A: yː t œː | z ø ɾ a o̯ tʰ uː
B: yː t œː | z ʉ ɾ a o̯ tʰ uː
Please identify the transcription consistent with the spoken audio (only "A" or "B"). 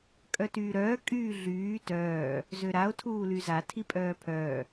A